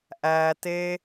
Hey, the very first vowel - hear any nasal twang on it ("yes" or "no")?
no